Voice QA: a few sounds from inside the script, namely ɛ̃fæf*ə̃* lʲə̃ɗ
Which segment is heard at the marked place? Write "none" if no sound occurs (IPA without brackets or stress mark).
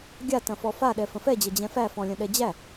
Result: ɔ̃